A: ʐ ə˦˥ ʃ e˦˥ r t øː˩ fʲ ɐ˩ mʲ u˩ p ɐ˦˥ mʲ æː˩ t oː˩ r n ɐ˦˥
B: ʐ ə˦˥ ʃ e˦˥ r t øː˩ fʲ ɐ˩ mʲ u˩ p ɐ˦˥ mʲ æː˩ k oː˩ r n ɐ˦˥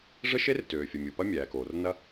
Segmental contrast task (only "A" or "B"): B